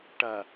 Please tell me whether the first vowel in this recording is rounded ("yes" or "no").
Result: no